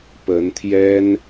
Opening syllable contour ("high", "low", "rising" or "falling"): rising